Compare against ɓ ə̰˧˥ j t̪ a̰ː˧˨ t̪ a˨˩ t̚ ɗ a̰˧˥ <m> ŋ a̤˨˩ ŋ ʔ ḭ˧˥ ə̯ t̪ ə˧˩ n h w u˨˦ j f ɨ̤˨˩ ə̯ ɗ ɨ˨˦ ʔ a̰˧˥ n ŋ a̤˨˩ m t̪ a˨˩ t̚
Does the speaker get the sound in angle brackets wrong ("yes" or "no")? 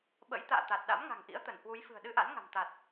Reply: no